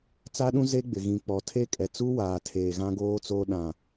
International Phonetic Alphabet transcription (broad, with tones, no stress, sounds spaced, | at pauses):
t͡s a˦ ɗ ũ˦ z e˦ ɡ͡b ɪ˨ ɣ ĩ˨ k͡p ɔ˨ tʰ e˦ kʼ ɛ˨ t͡s u˦ w aː˨ tʰ eː˨ ɣ ã˦ ɡ oː˦ t͡s o˦ ɗ ã˨